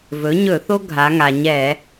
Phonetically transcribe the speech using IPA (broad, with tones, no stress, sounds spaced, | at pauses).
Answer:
v ɵ˩˥ ɲ ɵ˧˩˧ θ o˦ ɡʱ a˩˧ ŋ a˩ ɲ ɛ˧˩˧